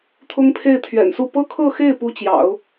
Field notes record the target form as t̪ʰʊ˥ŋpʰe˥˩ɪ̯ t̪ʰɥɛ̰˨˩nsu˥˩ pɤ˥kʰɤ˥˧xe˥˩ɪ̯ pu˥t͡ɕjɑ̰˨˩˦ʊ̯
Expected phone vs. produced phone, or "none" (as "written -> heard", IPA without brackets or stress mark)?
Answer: none